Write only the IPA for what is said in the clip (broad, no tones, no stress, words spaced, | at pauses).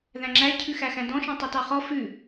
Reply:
ðæ̃ŋ͡ǁæ cʰʉxæxæ̃dɔ̃ ʃɔ̃tˤʉtɑχɔ fʉ